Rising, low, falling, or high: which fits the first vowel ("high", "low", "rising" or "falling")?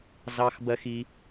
high